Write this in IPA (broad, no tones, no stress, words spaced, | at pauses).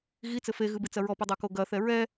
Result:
ɣit͡sɘ feɣɨbɨt͡sɐ ɹɔpudˤako ɡɐθɛ ɹɛ